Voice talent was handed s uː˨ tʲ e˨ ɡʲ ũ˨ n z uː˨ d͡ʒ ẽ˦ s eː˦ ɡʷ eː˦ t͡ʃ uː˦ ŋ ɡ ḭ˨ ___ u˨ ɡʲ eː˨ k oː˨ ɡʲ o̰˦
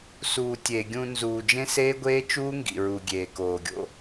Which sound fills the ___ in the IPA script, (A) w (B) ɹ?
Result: B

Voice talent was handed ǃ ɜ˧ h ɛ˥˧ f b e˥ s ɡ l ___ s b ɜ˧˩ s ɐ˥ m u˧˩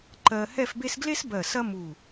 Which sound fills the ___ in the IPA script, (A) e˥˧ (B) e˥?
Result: B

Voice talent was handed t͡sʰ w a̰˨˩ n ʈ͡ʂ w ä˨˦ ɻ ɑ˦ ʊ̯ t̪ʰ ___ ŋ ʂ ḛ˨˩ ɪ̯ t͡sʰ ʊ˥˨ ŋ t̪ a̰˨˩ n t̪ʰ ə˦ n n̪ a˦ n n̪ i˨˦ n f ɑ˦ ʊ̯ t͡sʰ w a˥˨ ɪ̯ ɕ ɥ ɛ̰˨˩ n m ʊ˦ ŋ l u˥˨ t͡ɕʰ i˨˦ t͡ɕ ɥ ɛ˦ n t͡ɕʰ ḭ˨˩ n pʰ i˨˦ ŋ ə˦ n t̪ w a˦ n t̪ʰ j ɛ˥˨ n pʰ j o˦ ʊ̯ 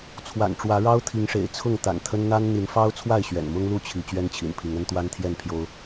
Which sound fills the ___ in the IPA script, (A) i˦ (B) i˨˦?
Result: B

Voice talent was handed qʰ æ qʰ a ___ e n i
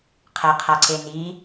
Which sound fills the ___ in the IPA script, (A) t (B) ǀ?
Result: B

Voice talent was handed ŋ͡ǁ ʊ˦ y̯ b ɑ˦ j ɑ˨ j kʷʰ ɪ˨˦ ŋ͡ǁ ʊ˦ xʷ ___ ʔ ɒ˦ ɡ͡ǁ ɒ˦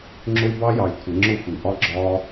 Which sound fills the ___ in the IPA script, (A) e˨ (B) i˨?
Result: B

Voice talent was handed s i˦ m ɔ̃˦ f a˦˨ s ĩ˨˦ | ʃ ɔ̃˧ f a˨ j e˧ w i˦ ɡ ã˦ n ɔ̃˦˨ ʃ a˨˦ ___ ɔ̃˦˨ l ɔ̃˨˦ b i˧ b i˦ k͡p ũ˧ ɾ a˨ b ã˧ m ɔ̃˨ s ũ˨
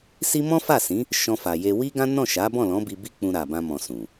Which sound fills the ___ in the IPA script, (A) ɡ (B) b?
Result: B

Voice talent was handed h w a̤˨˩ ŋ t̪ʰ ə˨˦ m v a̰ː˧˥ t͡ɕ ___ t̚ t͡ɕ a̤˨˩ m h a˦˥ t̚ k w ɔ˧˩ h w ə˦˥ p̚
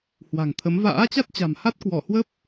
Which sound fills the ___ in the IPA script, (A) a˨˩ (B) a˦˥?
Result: B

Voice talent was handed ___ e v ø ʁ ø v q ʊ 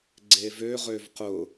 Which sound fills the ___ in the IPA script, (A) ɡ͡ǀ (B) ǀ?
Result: A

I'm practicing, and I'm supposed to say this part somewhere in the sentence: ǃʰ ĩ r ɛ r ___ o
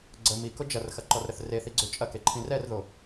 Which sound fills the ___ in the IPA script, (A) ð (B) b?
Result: A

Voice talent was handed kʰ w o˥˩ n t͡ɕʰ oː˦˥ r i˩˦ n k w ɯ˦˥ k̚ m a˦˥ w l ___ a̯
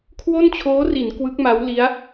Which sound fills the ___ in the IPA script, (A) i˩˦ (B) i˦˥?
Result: B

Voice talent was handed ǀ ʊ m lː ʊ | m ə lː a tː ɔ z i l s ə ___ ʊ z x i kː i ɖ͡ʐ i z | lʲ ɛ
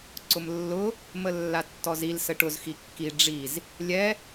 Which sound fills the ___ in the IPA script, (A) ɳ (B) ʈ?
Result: B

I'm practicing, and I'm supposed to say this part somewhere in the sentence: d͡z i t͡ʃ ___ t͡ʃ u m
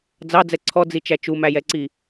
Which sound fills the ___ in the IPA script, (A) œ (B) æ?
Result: B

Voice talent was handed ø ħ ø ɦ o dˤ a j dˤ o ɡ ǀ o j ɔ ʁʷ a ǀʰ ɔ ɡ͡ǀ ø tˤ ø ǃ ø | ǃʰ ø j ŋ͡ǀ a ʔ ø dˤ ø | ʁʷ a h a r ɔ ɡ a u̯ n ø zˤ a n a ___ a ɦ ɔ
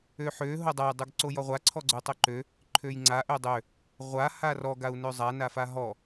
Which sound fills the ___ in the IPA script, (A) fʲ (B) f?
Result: B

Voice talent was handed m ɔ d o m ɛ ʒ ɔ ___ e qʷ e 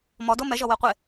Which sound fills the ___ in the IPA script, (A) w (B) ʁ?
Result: A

